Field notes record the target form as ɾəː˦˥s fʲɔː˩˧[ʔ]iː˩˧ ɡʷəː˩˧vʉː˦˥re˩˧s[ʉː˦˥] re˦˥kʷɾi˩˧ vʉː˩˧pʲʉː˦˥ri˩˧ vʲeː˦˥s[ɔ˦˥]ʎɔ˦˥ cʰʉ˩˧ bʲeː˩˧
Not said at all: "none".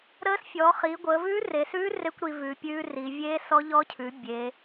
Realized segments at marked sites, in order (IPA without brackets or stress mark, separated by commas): χ, ʉː˦˥, ɔ˦˥